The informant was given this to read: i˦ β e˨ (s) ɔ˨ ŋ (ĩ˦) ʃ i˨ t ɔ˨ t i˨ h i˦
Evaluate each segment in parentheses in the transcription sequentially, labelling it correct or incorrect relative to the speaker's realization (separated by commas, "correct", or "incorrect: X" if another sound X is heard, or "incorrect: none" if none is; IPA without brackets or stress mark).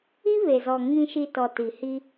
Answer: incorrect: z, incorrect: ĩ˨